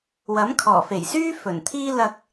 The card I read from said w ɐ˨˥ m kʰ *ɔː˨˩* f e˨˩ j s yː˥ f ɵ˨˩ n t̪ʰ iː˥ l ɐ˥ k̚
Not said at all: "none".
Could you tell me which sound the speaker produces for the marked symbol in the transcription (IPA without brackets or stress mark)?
ɔː˨˩